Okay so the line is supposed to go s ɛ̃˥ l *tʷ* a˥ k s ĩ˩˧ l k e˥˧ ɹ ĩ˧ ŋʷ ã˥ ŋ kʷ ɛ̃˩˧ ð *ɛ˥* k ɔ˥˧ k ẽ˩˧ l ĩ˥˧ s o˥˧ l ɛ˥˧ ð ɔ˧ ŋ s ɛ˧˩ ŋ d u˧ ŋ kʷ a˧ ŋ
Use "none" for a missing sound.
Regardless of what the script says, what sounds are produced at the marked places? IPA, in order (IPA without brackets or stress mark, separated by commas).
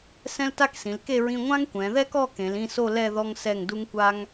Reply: t, ɛ˥